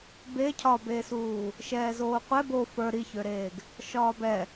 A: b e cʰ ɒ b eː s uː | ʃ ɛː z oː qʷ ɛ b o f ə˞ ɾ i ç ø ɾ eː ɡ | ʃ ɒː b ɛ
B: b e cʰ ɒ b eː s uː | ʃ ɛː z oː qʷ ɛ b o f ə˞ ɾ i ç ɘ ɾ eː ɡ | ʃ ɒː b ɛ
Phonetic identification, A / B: A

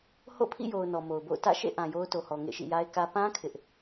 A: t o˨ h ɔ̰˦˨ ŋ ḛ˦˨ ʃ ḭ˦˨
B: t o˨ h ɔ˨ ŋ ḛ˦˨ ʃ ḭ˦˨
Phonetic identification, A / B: B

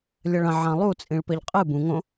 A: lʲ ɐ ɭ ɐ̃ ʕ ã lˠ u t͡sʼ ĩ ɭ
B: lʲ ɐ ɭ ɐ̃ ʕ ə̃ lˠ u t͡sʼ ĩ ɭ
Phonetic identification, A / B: A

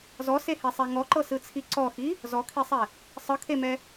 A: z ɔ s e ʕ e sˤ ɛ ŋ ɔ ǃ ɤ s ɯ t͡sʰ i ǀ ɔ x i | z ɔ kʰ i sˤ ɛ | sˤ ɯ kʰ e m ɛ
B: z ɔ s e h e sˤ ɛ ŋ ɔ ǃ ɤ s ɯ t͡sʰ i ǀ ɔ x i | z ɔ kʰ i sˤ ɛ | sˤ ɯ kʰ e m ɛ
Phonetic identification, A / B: B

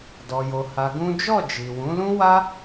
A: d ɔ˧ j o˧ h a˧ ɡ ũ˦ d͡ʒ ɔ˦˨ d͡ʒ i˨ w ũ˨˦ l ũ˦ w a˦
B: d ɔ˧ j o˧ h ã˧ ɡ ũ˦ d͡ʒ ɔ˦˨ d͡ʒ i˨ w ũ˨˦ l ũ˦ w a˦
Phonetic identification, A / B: A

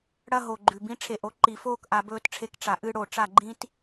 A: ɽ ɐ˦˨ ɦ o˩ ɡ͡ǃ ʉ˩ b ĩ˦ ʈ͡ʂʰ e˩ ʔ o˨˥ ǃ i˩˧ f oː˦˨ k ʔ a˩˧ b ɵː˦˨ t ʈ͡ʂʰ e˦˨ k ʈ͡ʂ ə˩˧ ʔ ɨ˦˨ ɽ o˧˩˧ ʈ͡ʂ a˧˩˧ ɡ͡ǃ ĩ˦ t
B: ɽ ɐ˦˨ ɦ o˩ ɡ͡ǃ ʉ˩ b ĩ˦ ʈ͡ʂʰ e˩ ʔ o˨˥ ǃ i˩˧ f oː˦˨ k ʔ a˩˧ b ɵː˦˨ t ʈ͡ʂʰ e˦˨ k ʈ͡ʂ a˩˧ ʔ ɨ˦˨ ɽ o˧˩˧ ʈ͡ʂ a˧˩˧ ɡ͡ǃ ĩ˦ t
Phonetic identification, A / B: B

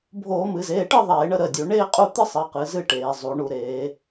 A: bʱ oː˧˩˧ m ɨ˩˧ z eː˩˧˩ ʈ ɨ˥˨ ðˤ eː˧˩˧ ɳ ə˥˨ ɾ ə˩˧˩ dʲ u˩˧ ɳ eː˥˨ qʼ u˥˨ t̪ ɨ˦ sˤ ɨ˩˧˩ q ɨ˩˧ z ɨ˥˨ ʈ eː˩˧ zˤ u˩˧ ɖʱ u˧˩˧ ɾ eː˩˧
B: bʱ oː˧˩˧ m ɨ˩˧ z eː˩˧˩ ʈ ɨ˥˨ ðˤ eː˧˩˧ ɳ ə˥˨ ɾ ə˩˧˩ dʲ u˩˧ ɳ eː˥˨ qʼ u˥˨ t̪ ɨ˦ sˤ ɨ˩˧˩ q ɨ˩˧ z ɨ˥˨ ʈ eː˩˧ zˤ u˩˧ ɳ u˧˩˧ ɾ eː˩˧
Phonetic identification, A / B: B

